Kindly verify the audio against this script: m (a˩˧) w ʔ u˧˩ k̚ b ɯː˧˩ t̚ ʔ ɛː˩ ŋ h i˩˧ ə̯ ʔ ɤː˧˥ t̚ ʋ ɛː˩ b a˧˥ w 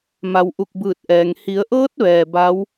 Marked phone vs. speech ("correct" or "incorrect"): correct